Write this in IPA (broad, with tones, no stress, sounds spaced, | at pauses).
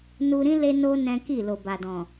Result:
n u˧ ɾ ĩ˦ l e˧ n o˧ n ɛ̃˦ k i˦˨ l o˨ b a˨ d ɔ̃˨